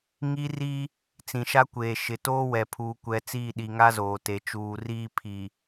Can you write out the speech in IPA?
ŋ i˦ r i˦ | t͡s ĩ˨ ʃ a˦ kʷ eː˨ ʃ ɪ˨ t oː˦ w ɛ˨ pʰ uː˨ kʷ ɛ˨ t͡s iː˦˨ ɗ i˨ ŋ a˦ z oː˨ t e˨ t͡ʃ uː˨ r iː˦ pʰ i˨

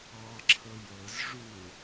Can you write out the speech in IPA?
ɑ ǁʰ ɤ j ɤ z ʐ u

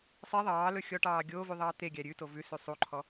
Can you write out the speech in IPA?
sˤ e ðˤ ɑː l ɵ xʲ ɔ ʈ ɑː ɡʲ oː v y ðˤ ɑː t̪ e ɡʲ æ ɾʲ ʉ t o v ʉ s y sˤ u ǃʰ ɔ

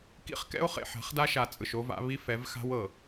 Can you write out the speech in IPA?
k ḭ˦ χ k ɛ̰˦ o̯ χ ḛ˨ ħ a̤˨˦ χ d a˦ ʃ a˨ t͡sʼ ɯ˨ ʃ o˦ v a̰˦ β i˦ f ɛ˨˦ v x a̤˦ w ɤ˨

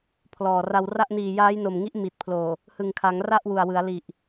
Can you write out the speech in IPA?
pʰ l ɔː˨˩ r a˧ w r a˥˩ ʔ n iː˨˩ j aː˦˥ j n o˨˩ m ŋ i˦˥ ʔ m i˨˩ t̚ pʰ l oː˨˩ | h ɯ˨˩ ŋ kʰ a˩˦ ŋ r a˥˩ ʔ w u˨˩ a̯ w ɯ˩˦ a̯ l i˨˩ ʔ

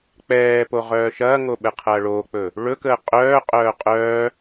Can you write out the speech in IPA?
k͡p ɛː p o ʁ œː ʃ ɐː ŋ o ɓ ɛ qʰ ɐː ɭ oː k͡p ɵ | ɭ ɵ k əː qʼ œː qʼ œː qʼ œː

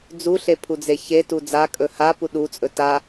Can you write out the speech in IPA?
d͡z u ɬ e pʰ u d͡z e ç e t u d͡z a kʼ ɵ h a p u ɗ u t͡sʼ ɵ t a

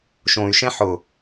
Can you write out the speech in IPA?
ʃ õ y̯ ʃ ɛ̃ ħ ʊ

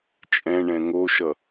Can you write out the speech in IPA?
t͡ʃʼ ɛ̃ ɳ ɛ̃ ŋ o ʃ ʌ

